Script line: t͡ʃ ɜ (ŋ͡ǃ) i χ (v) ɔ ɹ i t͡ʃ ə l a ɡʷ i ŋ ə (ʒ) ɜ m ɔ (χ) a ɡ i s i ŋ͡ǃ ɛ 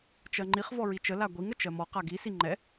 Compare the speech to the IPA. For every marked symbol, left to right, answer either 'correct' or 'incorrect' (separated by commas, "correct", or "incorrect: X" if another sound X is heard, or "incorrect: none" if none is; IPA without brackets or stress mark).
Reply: correct, correct, incorrect: t͡ʃ, incorrect: q